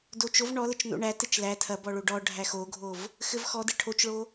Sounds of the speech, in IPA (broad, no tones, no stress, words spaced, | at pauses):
dot͡ʃov ɳɔlət͡ʃ no̰ɳætɘt͡ʃ læ tʰɐ bɔɭoɖɔ ɖʱæxoɡʱov | xɘvxɔdɘ ʈʰot͡ʃɭo